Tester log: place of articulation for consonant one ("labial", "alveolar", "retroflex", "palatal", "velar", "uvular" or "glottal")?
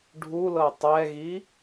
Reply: retroflex